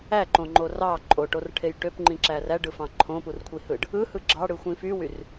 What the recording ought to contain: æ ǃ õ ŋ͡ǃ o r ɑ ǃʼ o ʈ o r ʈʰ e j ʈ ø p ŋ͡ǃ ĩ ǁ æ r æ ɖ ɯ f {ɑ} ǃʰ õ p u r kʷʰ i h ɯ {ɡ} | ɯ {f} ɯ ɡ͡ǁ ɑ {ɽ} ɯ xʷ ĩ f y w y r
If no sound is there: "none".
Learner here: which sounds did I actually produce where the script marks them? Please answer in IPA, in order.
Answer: ɑ̃, ɖ, h, ɽ

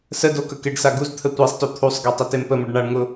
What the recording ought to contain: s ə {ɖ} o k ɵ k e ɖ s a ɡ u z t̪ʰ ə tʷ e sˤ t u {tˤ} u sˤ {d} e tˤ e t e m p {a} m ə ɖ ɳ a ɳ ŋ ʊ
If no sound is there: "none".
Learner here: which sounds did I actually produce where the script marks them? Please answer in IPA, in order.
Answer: d, t̪ʰ, ɡ, ə

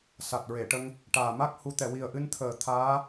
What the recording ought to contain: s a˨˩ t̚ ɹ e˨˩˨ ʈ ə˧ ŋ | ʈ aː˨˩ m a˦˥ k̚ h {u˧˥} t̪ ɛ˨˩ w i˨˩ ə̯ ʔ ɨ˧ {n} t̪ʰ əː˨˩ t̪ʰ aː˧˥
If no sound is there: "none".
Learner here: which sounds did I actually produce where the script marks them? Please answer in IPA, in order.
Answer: u˧, n

